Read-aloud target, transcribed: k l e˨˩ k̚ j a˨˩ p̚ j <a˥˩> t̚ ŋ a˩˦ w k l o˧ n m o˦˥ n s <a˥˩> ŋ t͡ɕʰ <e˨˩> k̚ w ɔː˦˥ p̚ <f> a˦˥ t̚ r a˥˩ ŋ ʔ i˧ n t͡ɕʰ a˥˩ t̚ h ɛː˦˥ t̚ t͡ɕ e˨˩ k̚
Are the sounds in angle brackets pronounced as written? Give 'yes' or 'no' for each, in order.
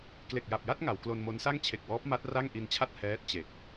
yes, yes, yes, no

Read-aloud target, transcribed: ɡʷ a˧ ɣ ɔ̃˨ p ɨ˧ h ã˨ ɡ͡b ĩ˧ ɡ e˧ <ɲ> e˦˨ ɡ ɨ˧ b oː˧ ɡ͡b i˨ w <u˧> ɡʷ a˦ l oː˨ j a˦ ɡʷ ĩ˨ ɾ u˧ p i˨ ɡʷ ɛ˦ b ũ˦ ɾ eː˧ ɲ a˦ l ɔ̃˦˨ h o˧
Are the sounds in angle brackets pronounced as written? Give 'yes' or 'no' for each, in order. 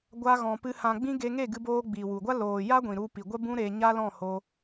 no, no

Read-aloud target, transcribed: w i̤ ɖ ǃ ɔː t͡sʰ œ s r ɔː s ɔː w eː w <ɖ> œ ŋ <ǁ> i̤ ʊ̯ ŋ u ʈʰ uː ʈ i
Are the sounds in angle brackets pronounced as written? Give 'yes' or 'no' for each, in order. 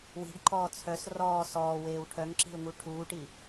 no, yes

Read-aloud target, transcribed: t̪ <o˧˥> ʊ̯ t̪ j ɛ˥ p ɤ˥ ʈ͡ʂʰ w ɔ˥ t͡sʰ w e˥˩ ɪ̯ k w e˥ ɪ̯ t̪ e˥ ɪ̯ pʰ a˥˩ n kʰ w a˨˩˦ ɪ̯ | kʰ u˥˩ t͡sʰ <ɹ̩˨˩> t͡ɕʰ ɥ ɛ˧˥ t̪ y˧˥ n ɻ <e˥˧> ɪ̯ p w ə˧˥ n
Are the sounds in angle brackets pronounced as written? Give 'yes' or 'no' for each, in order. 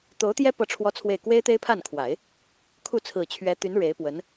yes, yes, no

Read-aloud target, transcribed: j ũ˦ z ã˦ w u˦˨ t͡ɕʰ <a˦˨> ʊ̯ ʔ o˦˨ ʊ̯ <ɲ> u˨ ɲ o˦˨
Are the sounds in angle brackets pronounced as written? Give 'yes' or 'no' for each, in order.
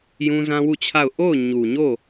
yes, yes

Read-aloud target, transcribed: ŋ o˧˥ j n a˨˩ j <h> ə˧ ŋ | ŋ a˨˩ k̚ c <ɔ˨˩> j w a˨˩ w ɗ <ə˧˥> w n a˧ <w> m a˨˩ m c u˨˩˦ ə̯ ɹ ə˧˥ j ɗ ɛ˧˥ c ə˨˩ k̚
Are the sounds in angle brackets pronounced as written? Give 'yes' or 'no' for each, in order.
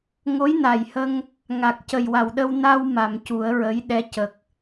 yes, no, no, yes

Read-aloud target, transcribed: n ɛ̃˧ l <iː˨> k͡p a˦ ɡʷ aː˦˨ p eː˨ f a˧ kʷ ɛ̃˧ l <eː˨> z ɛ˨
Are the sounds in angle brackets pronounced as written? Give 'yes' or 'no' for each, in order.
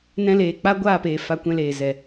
no, yes

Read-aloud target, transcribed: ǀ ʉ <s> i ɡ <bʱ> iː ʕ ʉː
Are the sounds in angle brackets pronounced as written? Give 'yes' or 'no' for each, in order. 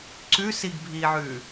yes, yes

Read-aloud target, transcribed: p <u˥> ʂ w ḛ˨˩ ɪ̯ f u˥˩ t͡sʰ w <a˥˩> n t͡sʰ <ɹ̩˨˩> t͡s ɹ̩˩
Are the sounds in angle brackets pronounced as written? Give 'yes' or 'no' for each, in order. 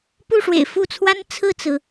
no, no, no

